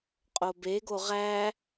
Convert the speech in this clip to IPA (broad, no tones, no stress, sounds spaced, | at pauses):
qʼ o b e ɡ o ʁ æ